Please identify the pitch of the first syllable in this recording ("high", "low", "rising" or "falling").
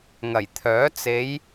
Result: low